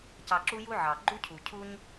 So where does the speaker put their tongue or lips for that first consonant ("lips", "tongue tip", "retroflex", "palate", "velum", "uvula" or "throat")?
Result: palate